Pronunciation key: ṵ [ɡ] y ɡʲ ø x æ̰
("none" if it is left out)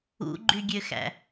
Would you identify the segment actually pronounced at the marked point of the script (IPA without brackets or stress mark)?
ɡ͡ǃ